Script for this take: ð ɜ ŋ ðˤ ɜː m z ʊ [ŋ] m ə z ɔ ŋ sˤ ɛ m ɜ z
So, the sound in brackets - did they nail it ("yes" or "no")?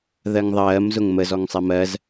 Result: yes